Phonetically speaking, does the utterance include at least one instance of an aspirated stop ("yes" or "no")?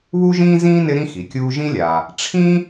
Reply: yes